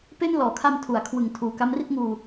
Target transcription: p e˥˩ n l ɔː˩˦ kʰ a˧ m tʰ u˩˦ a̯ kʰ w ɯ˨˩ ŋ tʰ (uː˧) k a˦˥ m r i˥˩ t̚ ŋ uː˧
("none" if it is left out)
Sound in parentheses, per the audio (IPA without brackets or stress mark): uː˨˩